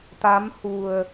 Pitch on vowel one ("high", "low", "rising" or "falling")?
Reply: rising